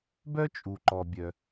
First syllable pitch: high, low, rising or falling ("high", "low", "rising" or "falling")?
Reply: high